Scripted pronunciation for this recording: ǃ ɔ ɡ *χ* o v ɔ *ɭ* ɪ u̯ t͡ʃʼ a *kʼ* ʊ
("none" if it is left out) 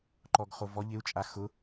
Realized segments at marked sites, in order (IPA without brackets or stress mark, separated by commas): χ, ʎ, x